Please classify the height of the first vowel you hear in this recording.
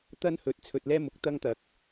low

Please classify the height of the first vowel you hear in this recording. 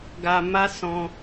low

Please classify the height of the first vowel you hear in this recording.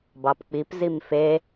low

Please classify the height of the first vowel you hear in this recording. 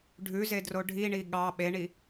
high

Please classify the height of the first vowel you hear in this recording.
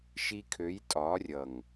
high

